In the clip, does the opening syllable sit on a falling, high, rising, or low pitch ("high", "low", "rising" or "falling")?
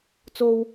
high